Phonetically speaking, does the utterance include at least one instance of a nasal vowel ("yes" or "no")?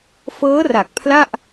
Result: no